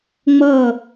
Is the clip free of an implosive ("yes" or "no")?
yes